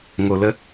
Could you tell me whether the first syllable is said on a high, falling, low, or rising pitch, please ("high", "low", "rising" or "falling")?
low